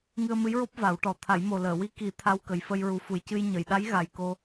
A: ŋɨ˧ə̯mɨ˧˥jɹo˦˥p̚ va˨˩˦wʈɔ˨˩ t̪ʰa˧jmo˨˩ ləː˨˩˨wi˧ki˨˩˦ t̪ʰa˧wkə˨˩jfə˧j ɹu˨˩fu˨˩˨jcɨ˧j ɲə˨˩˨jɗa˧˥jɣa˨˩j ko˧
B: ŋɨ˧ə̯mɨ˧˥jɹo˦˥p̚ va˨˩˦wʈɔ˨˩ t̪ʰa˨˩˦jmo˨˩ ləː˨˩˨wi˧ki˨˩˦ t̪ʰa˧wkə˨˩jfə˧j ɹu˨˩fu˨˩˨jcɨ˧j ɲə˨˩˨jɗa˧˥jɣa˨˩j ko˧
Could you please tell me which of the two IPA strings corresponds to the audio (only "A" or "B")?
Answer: B